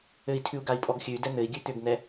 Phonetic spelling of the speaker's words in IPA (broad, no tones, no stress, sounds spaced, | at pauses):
ɘ i̯ tʰ ʉ u̯ ɡ a i̯ pʼ ɔ ɡ xʲ ʉ y̯ d ɛ n̪ ɘ i̯ ɡʲ ʉ t̪ ʏ ɡ n̪ ɛ